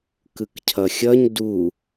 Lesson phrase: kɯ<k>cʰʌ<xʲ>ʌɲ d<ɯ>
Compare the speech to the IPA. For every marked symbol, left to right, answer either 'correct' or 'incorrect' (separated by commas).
correct, correct, incorrect